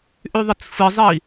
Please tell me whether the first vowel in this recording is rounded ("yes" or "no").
yes